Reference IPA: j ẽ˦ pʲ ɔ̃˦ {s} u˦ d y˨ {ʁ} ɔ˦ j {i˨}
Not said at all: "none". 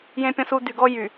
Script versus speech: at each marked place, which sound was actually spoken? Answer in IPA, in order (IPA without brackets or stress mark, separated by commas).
s, ɡ, y˨